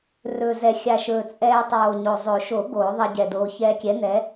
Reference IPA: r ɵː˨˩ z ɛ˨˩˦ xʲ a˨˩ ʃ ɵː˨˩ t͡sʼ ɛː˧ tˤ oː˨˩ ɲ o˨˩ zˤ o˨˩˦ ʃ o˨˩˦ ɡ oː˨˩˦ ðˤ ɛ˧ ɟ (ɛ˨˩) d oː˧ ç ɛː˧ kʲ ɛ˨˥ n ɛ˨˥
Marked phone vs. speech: correct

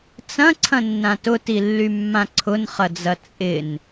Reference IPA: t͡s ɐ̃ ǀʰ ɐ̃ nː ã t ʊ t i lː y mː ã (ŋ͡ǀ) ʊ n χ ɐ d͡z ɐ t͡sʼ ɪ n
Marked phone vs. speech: incorrect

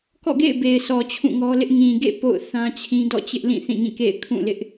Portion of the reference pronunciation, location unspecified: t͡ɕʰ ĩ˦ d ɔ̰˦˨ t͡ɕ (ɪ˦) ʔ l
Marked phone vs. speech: correct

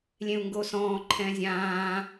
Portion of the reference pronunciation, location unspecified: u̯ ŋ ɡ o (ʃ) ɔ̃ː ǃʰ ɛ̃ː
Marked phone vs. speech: incorrect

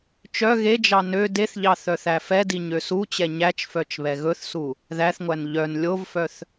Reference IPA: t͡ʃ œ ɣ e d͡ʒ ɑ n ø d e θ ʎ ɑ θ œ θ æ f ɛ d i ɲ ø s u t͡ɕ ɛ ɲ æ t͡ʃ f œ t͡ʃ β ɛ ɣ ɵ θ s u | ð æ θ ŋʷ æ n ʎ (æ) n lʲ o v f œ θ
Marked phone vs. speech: incorrect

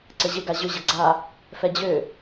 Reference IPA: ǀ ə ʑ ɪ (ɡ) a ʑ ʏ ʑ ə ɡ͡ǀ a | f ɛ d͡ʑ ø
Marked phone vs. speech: correct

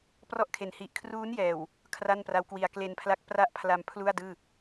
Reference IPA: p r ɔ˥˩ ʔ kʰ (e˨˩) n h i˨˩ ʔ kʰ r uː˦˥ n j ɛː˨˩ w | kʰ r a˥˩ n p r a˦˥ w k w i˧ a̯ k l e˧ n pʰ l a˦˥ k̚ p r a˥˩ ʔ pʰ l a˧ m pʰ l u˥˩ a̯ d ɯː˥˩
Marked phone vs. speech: correct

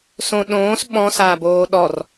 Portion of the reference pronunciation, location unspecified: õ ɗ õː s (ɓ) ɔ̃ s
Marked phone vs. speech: correct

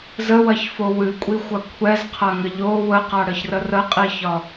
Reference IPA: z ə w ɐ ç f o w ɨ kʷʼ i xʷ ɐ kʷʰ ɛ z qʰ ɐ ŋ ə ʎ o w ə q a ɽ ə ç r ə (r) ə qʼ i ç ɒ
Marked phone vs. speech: correct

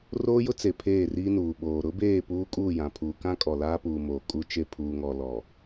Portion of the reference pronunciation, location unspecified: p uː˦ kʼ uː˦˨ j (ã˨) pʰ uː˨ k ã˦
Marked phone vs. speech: correct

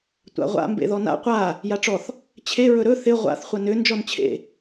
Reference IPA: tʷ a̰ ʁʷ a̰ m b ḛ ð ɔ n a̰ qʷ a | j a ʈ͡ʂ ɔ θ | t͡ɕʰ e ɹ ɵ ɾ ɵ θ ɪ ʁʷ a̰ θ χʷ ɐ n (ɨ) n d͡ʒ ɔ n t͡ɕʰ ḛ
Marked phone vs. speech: incorrect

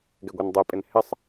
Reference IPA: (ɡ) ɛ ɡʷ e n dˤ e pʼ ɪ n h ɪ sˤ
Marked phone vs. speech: correct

